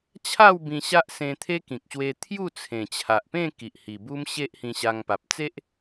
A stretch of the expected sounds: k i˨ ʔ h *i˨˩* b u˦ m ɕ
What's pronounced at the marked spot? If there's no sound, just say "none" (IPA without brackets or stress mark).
i˨˩